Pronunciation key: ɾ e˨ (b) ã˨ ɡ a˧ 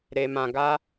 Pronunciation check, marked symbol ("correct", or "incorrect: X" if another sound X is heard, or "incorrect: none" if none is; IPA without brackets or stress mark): incorrect: m